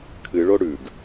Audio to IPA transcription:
kʰ ɨ ɭ o ɽ ʉ ɡ

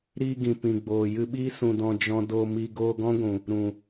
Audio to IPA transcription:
ɾ iː˧ ɡ ĩ˨ p ĩ˨ ɡ͡b oː˨ j ɨ˧ ɓ iː˦ s ũ˨ d ɔ̃˨ d͡ʒ ɔ̃˧ d o˧ m i˧ ɡ oː˧ ɡ ɔ̃˦ ɡʷ ũ˨ | ɾ ũ˨

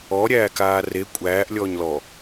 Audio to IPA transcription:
ɔ ɾʲ æː k aː r e kʷʼ æː ʔ lʲ ɔː ɲ l ɔ

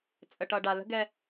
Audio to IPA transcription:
t͡sʼ ə˨ ʈ ʌ˨ ɖ a˨ l ə̤˦ ɡ ɛ˦

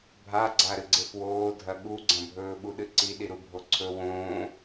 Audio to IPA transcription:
bʱ a ɡ͡ǀ a ɾ ɨ ɡ͡ǀ e f w oː dʱ ɐ ɠ u ɡ͡ǀ ɐ̃ bʱ ɵː ɓ u ɗ ɨ ǀ i ɗ i ɾ u bʱ o ǀʰ ɵ w õː

